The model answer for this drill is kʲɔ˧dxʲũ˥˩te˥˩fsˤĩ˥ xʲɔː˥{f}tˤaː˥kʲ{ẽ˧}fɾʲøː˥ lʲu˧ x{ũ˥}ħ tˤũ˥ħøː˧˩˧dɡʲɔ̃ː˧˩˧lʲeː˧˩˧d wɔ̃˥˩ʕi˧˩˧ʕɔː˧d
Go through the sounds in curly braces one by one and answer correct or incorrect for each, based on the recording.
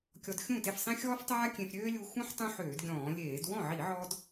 correct, correct, correct

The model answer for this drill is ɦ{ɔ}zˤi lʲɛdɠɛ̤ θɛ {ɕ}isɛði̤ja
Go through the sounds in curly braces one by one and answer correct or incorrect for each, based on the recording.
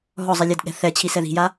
correct, incorrect: t͡ɕʰ

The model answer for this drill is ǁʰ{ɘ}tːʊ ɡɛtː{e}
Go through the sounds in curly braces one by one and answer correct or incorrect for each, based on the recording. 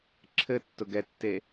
correct, correct

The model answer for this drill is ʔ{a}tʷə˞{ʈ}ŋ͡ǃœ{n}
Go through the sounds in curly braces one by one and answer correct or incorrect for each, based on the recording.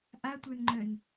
correct, incorrect: n, correct

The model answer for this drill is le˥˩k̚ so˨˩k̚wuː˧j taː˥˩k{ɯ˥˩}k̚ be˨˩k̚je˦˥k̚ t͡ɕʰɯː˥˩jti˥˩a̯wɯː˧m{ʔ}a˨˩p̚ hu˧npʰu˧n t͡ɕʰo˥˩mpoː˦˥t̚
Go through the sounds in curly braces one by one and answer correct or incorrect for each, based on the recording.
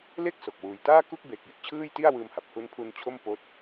incorrect: u˥˩, incorrect: h

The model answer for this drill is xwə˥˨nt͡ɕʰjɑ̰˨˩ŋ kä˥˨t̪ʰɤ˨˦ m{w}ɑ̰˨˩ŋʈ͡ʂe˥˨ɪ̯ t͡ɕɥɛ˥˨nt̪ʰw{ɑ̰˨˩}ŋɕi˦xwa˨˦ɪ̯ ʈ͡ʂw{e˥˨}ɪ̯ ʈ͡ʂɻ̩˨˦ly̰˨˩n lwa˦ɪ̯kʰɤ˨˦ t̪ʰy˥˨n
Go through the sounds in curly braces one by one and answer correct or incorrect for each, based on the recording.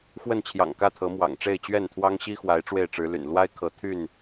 correct, incorrect: ɑ˦, correct

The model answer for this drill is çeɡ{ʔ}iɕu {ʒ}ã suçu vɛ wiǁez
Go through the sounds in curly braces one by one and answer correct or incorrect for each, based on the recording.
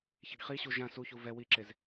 incorrect: χ, correct

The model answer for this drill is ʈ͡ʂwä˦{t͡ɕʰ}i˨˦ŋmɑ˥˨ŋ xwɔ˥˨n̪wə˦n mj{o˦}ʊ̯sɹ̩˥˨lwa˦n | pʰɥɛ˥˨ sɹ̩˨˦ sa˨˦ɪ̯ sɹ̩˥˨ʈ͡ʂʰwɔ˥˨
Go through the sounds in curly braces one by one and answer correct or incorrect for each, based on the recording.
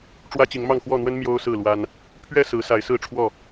incorrect: t͡ɕ, correct

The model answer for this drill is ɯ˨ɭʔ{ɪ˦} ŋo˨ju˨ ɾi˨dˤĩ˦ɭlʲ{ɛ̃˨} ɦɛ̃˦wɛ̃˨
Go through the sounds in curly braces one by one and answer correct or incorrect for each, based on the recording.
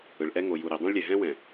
incorrect: ɛ˦, incorrect: ɛ˨

